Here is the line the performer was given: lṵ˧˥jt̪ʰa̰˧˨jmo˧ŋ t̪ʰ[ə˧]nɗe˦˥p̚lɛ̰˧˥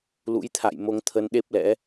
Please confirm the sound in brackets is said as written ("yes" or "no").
yes